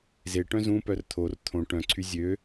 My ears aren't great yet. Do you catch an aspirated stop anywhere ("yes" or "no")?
yes